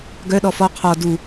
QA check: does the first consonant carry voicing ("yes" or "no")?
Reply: yes